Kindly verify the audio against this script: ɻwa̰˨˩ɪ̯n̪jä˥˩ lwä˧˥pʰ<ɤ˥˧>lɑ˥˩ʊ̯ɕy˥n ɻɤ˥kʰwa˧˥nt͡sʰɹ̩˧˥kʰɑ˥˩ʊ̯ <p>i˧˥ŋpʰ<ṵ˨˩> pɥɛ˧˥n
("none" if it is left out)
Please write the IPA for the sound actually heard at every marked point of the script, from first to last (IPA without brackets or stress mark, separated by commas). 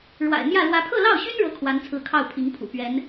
ɤ˥˧, pʰ, ṵ˨˩